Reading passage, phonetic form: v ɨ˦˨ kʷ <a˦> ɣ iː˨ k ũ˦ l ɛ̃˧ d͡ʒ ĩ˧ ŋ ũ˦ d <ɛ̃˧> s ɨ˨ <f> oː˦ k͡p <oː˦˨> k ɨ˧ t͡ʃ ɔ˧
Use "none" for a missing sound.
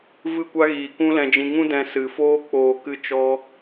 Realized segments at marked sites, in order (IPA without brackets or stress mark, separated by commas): a˦, ɛ̃˧, f, oː˨